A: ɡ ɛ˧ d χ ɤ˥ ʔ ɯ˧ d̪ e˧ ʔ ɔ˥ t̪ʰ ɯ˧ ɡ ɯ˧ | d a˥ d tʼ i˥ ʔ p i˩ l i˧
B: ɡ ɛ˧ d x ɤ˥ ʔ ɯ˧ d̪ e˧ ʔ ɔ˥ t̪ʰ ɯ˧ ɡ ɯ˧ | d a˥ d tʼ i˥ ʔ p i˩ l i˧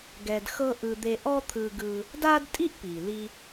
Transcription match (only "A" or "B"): B